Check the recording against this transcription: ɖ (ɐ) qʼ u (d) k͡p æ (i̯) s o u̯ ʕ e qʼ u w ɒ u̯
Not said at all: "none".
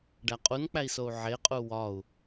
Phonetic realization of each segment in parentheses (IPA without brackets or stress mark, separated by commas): æ, n, i̯